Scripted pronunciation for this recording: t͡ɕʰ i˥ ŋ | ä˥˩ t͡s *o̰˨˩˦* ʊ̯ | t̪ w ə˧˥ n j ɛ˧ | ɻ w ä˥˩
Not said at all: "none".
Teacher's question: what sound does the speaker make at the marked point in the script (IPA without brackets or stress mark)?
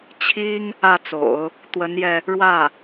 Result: o̰˨˩˦